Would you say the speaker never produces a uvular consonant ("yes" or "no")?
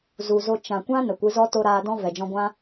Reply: yes